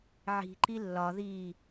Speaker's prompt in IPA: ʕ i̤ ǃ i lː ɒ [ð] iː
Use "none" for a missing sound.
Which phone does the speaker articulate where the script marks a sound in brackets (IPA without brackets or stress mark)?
ð